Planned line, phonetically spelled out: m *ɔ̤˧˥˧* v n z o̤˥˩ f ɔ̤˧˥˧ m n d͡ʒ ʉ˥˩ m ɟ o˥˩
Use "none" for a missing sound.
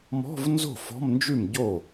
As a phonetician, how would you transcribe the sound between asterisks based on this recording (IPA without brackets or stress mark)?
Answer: ɔ̤˧˥˧